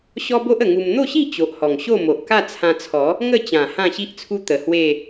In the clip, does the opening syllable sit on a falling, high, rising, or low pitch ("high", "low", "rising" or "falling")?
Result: high